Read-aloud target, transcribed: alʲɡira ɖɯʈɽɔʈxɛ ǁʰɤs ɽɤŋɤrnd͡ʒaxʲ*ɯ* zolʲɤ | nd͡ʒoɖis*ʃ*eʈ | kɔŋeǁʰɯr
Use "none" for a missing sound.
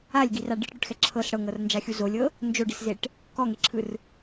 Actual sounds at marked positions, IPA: u, z

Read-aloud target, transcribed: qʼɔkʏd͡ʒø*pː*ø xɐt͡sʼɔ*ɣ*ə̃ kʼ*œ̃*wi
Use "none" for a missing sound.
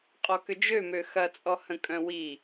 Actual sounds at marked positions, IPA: m, h, œ̃

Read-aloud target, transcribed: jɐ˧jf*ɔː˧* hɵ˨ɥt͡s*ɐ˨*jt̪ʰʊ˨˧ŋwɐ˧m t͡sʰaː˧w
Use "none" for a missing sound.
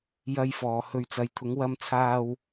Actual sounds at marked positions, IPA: ɔː˨, ɐ˨

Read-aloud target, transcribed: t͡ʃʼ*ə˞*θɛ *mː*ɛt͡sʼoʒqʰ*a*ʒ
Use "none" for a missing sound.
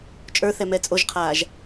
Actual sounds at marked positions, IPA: ə˞, m, aː

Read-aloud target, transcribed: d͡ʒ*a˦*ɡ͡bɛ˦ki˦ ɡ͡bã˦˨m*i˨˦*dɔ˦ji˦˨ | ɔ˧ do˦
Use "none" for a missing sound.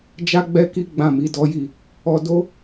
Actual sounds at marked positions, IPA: a˦, i˨˦

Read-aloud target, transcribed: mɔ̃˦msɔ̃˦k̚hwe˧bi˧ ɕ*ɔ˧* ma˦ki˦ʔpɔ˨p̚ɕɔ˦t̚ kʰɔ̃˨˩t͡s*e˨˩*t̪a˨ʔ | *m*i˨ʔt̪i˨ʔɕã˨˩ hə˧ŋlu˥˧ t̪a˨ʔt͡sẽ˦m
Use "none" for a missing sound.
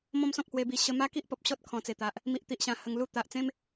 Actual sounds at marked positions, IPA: ə˧, e˨˩, m

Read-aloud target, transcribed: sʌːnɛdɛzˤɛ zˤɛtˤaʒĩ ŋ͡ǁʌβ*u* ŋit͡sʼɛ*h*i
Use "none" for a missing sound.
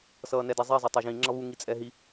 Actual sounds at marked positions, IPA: u, ɦ

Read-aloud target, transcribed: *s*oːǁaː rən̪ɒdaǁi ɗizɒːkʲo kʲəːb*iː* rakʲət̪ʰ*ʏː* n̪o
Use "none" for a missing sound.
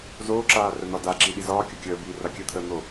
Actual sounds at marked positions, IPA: z, iː, əː

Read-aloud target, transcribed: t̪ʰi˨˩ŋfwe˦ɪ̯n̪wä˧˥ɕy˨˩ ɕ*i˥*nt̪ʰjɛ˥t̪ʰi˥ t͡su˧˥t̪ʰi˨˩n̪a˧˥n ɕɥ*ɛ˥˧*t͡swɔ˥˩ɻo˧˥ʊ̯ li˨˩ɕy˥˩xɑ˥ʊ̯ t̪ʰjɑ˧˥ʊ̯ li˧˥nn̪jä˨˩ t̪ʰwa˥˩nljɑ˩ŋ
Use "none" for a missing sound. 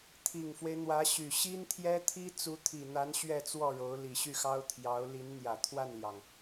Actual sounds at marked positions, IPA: i˥, ɛ˥˧

